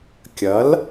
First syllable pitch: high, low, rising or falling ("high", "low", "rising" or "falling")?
rising